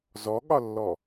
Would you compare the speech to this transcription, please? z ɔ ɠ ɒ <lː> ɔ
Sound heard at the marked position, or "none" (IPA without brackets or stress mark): lː